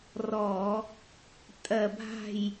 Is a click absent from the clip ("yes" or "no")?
yes